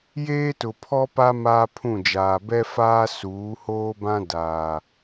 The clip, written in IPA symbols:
j eː˦ t ʊ˨ pʰ ɔ˦ p a˦ m aː˦ pʰ ũ˦˨ d͡ʒ aː˨ b ɛ˦ f aː˦ s uː˨˦ h oː˦ b ã˦ d aː˨

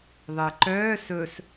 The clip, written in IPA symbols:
ðˤ əː ǃ œː s ɵ s

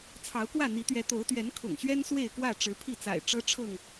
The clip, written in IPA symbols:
t͡sʰ ɑ˨˦ ʊ̯ k w ä˥˨ n̪ i˨˦ t̪ ɥ ɛ˨˦ t̪ o˨˦ ʊ̯ t̪ ɥ ɛ˨˦ n kʰ ʊ̰˨˩ ŋ ɕ ɥ ɛ˦ n s w e˥˨ ɪ̯ k w ä˥˨ ʈ͡ʂ ɻ̩˨˦ pʰ i˥˨ t͡s a̰˨˩ ɪ̯ ʈ͡ʂ ɤ˦ ʈ͡ʂʰ ɤ˥˨ ŋ

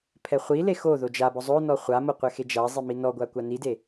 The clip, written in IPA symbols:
pʰ ɛ χʷ i l e x o ð o d͡ʒ a b ɔ zˤ o n ɔ χʷ a m o qʷ ɛ x e d͡ʒ a zˤ i m i n ɔ ɡʷ a kʷ a n i d e

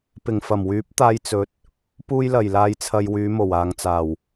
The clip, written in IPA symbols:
p ɪ˨˩ ŋ f ɐ˨˩ m w yː˨˥ p̚ t̪ aː˧ j t͡s ɵ˨ t̚ | p uː˧ j l ɐ˨˩ j l aː˨ j t͡sʰ ɐ˨ j w yː˨˧ m o˨˩ w aː˨ ŋ t͡s aː˨˩ w

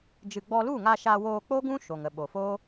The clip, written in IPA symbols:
d͡ʒ ɨ˨ ɡ͡b ɔ˧ l u˦˨ ŋ a˧ ʃ aː˧ w oː˧ k͡p o˦ ɡ ũ˦ ʃ o˨ ŋ ə˨ ɓ o˨ f oː˦

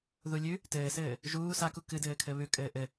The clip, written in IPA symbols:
ð u lʲ ʉ | t ɘː s ɘː | ʒ uː s a k u k ɨ d ɘː kʰ ɘ β ʉ kʼ ɘː ʔ ɘ

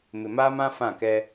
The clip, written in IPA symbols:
m ɪ˨ m aː˦ m ã˦ f ã˦˨ k ɛ˦

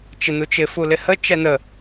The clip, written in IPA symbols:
t͡ʃ ɪ n u t͡ʃ ɪ f u l ɪ h ə t͡ʃ ɛ n ə

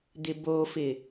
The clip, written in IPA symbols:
d̪ ɪ b o f ɪ

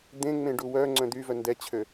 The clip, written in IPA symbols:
d̪ ẽ ŋ͡m ẽ ɖ u w œ ŋ͡ǀ œ̃ d̪ y v œ n d ɛ t͡ɕʰ ø

